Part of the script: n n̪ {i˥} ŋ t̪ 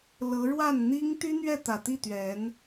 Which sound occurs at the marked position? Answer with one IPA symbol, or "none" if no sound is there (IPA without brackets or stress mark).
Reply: i˥